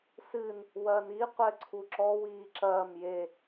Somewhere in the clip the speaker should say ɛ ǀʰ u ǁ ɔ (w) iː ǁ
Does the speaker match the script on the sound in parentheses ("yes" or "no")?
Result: yes